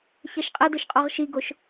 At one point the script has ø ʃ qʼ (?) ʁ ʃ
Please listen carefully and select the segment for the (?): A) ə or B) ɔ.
B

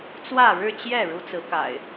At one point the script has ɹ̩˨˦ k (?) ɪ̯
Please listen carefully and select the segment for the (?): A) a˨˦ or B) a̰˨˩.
B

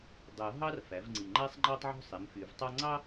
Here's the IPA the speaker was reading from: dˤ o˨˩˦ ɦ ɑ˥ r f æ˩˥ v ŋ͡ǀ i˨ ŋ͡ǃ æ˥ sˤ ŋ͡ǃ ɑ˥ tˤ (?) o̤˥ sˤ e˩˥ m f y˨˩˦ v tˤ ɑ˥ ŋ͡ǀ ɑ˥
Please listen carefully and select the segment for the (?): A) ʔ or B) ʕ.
B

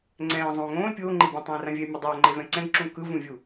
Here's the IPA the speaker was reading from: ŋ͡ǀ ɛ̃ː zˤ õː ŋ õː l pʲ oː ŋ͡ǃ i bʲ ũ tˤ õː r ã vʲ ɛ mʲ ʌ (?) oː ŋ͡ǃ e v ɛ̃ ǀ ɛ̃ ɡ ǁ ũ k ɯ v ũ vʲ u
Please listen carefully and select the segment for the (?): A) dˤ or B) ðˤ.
A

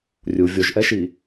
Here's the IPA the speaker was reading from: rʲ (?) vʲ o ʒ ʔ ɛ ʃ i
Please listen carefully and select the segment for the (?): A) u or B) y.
A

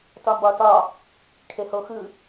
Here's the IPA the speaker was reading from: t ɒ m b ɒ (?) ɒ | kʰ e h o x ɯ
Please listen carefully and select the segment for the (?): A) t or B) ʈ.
A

